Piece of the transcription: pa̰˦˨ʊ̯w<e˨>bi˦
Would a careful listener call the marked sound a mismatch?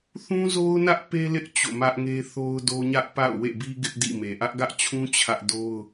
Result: yes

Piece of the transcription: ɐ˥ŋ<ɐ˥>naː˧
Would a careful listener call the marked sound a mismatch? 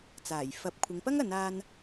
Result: yes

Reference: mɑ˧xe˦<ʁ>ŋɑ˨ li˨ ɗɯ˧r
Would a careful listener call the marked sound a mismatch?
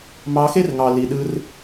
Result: yes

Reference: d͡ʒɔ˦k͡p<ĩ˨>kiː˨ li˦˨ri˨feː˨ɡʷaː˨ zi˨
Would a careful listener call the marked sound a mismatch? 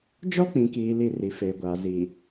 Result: no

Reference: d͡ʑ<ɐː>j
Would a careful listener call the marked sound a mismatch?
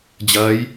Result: no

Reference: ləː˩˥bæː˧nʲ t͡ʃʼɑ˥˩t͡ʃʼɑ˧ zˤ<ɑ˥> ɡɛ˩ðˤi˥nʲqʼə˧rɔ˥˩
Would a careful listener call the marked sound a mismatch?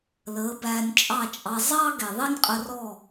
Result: no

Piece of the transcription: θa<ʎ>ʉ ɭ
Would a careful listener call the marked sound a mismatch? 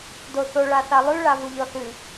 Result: yes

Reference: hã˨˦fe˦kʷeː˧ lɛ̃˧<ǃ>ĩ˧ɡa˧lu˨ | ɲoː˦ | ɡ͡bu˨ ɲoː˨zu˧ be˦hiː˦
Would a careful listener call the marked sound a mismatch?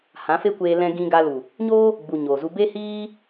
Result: yes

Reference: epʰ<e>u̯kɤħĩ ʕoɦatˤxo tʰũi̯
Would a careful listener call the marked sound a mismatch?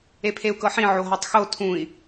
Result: no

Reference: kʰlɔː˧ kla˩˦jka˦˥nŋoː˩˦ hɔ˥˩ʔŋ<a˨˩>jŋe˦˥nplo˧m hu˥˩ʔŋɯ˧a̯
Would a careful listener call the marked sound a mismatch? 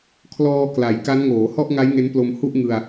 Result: yes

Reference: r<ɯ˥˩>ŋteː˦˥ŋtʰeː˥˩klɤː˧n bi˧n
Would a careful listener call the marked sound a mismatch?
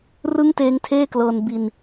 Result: no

